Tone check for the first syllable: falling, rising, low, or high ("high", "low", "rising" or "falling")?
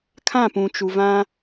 falling